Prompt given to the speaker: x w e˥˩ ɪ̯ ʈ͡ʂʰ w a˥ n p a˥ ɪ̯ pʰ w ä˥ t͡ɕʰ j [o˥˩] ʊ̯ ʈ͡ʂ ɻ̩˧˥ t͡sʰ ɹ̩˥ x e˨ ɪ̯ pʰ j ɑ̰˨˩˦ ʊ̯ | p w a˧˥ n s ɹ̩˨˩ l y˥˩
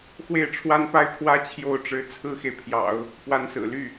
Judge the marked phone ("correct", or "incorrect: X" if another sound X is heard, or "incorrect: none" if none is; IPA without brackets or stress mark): correct